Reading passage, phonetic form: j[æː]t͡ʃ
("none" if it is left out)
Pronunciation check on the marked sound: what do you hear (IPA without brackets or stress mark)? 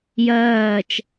ɜː